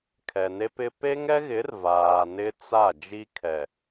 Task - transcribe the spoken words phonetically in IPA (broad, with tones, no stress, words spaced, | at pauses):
kʰɛ˨ne˦ pɪ˦ pe˦ŋɛ˦ɣɪ˨˦r vaː˨nɪ˦t͡sa˦˨ d͡ʒi˦kʰɛ˨